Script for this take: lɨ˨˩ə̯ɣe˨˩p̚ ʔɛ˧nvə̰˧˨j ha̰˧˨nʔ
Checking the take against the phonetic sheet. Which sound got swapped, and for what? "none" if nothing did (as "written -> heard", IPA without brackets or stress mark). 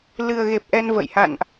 none